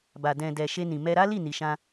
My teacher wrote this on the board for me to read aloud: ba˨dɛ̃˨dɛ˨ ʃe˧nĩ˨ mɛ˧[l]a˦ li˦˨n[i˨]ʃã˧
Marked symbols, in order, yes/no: no, yes

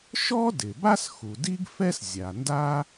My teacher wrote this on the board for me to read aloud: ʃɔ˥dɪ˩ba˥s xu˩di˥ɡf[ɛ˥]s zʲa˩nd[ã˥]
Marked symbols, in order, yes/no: yes, no

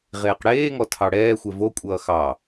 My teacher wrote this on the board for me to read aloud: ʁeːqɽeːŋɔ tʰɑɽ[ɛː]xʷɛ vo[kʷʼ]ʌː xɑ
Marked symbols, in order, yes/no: yes, yes

